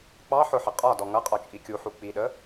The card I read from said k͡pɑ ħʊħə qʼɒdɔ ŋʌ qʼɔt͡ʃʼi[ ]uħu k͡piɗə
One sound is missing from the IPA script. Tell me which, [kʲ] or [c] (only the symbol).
kʲ